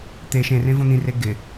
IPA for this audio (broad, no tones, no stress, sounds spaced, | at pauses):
t̪ e ʃ ẽ r ẽ v õ n̪ ĩ r e ɡ ɪ